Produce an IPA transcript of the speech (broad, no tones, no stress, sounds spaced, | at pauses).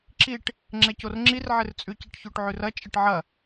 ǁ i ʈ | ŋ͡ǁ ɛ c o r ŋ͡ǁ i r ʕ ɪ r t͡sʼ ʉ c ɛ ʈ ç o ʈ ʕ ʉ r ɐ t͡ʃʼ ɪ ʈ ʕ ɐ